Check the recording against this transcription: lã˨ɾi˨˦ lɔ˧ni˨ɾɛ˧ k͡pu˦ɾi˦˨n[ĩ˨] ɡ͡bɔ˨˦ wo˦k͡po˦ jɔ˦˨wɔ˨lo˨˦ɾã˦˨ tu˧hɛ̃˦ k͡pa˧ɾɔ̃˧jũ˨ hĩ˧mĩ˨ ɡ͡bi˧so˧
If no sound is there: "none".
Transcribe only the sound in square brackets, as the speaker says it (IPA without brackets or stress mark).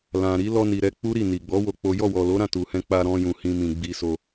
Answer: i˨